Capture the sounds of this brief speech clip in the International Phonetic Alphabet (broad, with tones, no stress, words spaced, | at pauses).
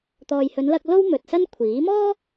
t̪ɔː˨jhɵ˨˧nlɐ˧k̚ lo˥wmɵ˨t̚sɐ˥n kʷʰiː˨˥ mɔː˥